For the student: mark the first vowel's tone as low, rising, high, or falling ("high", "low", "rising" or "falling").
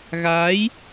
rising